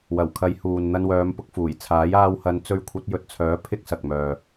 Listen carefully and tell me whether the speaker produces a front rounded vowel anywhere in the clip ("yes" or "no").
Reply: yes